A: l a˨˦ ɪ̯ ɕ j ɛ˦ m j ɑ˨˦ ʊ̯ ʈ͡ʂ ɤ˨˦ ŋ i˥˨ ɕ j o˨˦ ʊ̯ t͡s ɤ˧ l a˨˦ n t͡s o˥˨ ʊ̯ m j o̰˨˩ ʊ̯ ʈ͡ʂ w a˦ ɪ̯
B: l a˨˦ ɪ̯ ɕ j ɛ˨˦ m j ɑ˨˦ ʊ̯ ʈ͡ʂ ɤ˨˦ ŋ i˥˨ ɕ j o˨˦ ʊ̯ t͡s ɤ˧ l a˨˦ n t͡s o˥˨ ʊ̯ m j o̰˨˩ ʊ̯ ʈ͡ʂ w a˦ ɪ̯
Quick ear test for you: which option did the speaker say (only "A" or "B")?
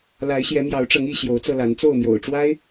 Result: B